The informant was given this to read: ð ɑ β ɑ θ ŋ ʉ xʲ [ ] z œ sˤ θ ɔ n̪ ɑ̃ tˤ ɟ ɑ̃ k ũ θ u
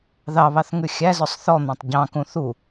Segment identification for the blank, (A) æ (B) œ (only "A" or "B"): A